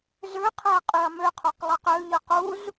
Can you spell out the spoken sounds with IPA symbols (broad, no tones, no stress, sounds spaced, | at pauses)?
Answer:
z ø qʰ e ɐ̯ qʼ y ɐ̯ m ø qʰ u q lˠ ɯ q ø ʎ ɯ q u z